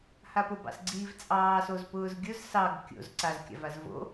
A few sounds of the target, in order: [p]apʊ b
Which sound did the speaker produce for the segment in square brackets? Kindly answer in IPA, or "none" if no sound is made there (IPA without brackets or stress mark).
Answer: h